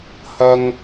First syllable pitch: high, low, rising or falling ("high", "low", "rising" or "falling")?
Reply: high